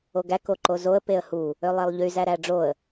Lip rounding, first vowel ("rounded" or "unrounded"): rounded